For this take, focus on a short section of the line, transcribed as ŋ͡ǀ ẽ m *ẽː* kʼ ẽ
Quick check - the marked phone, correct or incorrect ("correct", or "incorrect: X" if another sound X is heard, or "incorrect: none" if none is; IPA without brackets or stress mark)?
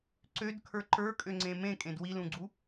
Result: incorrect: ẽ